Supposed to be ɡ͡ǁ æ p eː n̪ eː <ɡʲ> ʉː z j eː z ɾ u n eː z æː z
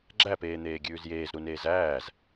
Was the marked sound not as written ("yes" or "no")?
no